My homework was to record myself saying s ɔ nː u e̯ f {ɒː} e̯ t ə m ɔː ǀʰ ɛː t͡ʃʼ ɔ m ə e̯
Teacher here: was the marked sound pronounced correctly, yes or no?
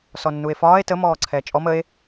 yes